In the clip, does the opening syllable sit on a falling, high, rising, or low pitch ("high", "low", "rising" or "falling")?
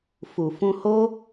low